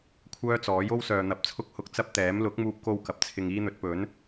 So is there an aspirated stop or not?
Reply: yes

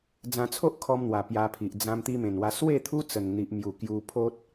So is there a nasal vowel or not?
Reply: yes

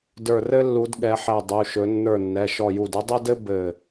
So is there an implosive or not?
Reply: yes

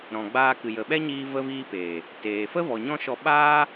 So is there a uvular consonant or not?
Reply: no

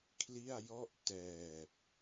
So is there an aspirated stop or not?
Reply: yes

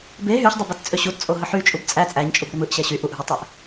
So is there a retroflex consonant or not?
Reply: no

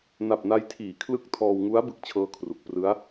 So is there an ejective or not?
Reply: no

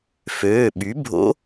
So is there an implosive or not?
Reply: yes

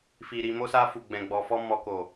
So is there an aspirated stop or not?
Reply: no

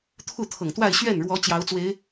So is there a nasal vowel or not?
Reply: no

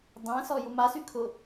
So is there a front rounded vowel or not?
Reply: yes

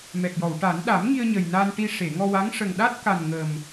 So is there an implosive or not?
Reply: yes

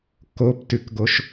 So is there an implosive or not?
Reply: no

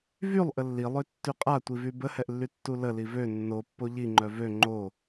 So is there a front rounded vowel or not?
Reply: yes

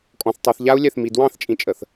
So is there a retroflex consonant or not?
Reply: no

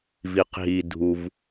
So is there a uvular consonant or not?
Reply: yes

